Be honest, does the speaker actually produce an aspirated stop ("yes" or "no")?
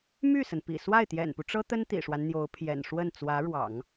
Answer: yes